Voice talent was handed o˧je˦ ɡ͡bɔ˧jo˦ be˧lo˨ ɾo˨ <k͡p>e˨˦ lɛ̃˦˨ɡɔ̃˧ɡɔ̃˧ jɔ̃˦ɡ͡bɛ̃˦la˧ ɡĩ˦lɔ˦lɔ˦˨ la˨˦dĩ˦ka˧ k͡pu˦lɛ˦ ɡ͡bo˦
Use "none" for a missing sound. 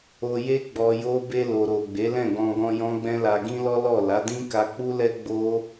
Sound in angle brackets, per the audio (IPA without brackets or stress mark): ɡ͡b